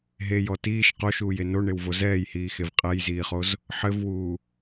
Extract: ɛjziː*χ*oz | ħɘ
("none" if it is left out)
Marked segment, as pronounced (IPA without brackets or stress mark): χ